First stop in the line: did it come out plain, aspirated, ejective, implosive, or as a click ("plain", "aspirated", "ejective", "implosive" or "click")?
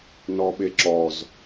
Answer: implosive